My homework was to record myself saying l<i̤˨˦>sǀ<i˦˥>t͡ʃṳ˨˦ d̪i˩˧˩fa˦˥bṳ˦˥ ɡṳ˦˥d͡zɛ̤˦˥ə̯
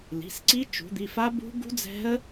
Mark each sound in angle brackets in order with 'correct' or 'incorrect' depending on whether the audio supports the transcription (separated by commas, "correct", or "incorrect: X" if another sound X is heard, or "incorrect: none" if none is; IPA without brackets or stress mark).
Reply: incorrect: i̤˩˧˩, correct